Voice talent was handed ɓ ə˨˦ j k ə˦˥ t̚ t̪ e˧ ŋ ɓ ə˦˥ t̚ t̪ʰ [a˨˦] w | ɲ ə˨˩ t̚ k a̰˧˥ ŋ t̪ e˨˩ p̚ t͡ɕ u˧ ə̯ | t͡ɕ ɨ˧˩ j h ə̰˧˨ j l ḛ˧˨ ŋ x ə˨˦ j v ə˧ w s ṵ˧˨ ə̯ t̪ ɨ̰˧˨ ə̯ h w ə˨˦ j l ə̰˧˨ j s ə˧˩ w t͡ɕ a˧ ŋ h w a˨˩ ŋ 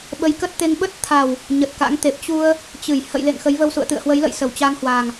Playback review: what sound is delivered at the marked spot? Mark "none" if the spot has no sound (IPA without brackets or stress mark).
a˨˩